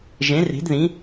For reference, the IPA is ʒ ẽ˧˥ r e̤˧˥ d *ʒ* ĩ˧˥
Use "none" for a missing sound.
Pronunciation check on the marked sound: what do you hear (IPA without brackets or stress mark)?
ð